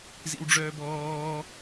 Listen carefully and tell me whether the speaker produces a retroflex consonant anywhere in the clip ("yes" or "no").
yes